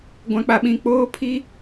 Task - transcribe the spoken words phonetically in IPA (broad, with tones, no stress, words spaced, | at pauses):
ɡʷã˦k͡pa˦ɓĩ˦ k͡poː˦pʰi˦